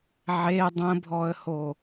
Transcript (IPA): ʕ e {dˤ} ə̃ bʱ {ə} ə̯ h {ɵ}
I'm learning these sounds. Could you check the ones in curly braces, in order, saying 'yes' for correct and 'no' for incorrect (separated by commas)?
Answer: yes, no, no